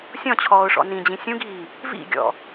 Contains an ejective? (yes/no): no